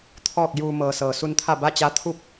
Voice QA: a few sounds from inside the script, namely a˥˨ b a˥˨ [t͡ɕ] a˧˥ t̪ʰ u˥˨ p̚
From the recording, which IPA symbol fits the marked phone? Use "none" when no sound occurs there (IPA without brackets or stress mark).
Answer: t͡ɕ